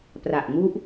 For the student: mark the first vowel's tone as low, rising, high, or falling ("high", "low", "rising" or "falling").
low